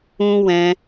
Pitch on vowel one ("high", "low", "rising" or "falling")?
high